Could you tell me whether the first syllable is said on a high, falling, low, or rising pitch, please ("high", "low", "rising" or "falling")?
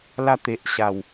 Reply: high